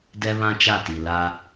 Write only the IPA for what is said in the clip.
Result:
dɛ˦βã˦t͡ʃa˦˨ti˨ la˦

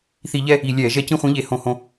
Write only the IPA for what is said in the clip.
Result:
θi˧˩˧ʎɛ˥˧ | i˧˩˧lʲɛː˧˩˧ʒɛ˥˧ cĩ˥˧χʷĩ˧˥ʎe˧˩˧ hõ˧˩˧hõ˧

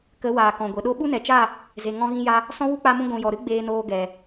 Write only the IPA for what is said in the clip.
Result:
kə˨˦waː˨ kɔ̃˨ɡʷe˨ ɗo˧ɓu˦nɛ˨t͡ʃa˦˨ | ze˨ ŋɔ̃˧ɣĩ˧ja˧ | sɔ̃˦wu˦k͡pa˧mũ˧ ɡʷũ˨jɔ˨ɾɨ˦ ɡ͡beː˧noː˧ɡɛ˨

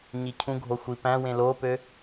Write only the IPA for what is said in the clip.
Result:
ɲicʰũɡʱo xʷipæ̃wẽ lopø

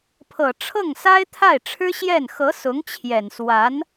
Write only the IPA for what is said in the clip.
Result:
pʰɤ˨˩ʈ͡ʂʰɤ˥˩ŋsa˥ɪ̯ t̪ʰa˥˩ɪ̯ʈ͡ʂʰɻ̩˥ɕjɛ˥˩n xɤ˧˥ sʊ˧˥ŋt͡ɕʰjɛ˨˩n swa˧˥n

